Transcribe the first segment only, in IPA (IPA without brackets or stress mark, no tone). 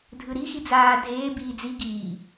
dʱ